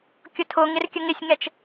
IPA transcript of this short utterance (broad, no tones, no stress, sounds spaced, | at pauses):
kʲ ʊ tʰ ʊ ŋ ɪ r kʲ ə ŋ ɪ sʲ ŋ ɛ t͡ʃ